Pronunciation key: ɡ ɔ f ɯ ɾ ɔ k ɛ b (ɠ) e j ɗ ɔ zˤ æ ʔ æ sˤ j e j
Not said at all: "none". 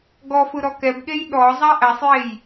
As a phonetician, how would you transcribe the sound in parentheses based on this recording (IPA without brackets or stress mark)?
ɠ